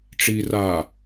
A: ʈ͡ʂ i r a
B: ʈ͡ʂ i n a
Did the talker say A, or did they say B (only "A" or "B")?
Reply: A